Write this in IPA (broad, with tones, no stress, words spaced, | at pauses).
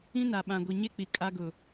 ĩ˦na˨ ɓã˨ ɡʷi˨ ɲe˦ k͡pi˨ kʼa˦ɡʊ˨